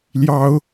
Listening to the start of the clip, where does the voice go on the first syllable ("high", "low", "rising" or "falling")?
high